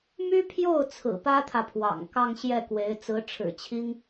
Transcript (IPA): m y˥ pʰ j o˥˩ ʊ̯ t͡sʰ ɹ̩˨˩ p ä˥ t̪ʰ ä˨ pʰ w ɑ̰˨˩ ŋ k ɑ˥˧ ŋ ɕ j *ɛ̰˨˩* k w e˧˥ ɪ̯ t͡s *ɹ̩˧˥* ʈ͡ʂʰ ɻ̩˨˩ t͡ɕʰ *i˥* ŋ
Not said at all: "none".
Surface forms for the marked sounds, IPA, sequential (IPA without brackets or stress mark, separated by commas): ɛ˥˩, ɹ̩˧˥, i˥